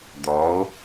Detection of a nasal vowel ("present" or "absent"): absent